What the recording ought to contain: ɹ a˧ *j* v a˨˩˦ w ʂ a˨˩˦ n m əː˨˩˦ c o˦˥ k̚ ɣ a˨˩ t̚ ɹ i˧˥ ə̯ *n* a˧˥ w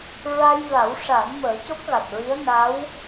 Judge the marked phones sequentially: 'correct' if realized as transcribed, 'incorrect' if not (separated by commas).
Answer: correct, correct